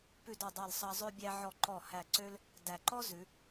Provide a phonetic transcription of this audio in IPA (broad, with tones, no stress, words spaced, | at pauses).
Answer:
pʉ˧˩d ɔ˧˩dˤɑ˧˩lsˤɑ˧ zˤø˥˧ bʲæ˧ʕɔ˧˩ ǃɔ˧˩hæ˧˩ ǀø˥l | dæ˧˩ ǃɔ˥ zʉ˩˧